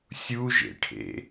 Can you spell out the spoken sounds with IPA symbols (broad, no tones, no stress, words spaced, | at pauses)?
sʲuʒḛʈʰḛ